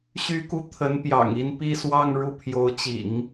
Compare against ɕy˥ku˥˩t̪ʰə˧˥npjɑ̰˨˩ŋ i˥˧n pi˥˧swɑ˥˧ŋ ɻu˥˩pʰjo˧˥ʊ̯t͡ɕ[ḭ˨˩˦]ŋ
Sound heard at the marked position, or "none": ḭ˨˩˦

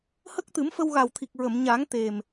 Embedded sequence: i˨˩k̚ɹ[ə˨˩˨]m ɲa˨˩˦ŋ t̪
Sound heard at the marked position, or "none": ə˨˩˨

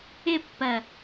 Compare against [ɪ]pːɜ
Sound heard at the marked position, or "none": ɪ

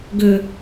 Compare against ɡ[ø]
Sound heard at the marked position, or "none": ø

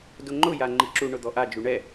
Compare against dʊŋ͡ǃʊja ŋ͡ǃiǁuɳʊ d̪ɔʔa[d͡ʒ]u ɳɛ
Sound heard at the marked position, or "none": d͡ʒ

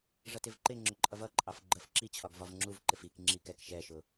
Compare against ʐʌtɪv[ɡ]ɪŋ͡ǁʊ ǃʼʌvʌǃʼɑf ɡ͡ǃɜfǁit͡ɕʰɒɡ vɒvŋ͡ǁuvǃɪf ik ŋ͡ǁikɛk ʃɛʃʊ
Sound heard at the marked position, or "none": ǃ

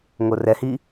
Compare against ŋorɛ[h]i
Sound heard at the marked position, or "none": h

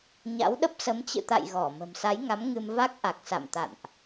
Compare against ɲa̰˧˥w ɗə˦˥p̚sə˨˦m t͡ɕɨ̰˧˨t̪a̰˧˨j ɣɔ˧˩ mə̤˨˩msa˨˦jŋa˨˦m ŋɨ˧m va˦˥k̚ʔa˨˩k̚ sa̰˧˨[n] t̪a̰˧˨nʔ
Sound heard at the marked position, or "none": m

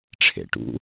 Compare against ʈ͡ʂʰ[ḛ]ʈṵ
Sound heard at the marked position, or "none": ḛ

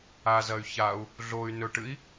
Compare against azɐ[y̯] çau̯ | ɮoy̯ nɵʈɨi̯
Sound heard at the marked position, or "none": y̯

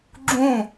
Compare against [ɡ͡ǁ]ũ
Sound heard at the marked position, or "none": ɡ͡ǁ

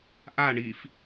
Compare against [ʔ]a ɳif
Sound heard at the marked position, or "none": ʔ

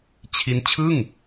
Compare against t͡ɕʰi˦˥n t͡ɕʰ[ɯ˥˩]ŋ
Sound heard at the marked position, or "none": ɯ˥˩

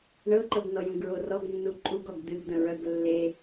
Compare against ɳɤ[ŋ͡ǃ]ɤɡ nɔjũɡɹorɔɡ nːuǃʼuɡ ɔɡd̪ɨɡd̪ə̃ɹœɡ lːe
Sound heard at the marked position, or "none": ǃ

